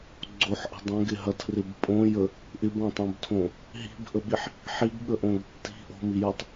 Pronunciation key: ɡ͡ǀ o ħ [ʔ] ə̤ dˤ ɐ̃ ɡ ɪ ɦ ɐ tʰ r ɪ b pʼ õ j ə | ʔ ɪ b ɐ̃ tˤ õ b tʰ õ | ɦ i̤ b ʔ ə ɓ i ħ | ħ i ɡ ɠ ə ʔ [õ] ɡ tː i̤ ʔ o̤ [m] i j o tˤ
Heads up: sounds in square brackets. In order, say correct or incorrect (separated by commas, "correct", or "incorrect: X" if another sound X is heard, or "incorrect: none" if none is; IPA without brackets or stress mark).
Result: correct, correct, correct